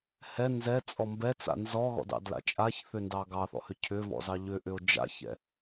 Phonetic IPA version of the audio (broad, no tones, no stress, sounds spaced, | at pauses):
h ɛ n z ɛ t͡sʼ ɔ m b ɛ t͡s a̰ n z ɔ ɣ ɔ̰ d ɑ̰ d l a̰ t͡ʃʼ a ç θ ʏ n d ɑ ɡ ɑ θ ɔ̰ h ʏ cʰ ʏ v ɔ̰ z ɑ ʎ ʏ ʔ ʏ o̯ d͡ʒ a̰ ç ɛ̰